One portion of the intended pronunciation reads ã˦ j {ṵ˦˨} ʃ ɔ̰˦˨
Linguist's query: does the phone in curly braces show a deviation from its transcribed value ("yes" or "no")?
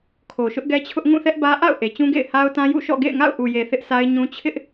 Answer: no